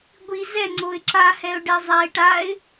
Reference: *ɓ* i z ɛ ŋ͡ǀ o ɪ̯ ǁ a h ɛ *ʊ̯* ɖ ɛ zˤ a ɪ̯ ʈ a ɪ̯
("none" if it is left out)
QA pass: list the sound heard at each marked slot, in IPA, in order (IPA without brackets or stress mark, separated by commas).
ɡʷ, ʊ̯